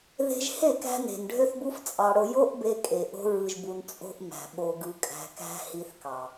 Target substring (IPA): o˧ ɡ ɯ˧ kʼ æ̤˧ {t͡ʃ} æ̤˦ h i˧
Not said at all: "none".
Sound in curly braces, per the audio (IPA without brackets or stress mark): k